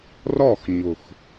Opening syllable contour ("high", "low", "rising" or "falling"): falling